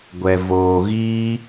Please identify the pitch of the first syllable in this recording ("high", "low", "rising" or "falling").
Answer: low